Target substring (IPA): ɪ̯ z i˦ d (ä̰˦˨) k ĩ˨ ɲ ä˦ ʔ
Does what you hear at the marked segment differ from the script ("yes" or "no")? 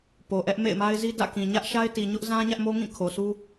no